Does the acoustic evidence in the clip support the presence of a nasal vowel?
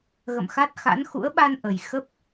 no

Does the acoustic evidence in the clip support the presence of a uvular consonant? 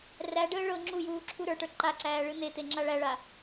no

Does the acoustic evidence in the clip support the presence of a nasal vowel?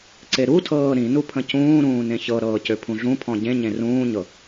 yes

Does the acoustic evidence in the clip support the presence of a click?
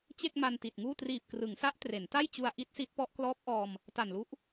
no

